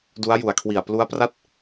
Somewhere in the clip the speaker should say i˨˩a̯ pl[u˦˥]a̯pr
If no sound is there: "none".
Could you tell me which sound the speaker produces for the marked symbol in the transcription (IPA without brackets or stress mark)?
u˦˥